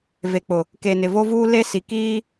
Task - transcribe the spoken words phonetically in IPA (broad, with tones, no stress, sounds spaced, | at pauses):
v e˨ k͡p ʊ˨ | k e˨ n ɪ˨ v o˦ v uː˦ l e˦ s i˨ k iː˦